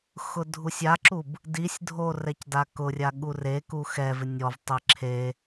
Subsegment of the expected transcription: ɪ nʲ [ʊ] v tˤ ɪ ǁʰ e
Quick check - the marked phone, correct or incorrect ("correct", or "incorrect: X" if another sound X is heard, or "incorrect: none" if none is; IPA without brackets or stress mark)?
incorrect: ɔ